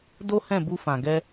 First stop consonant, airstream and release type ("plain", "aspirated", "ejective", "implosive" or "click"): plain